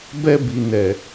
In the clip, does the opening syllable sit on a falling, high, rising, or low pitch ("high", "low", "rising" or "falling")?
high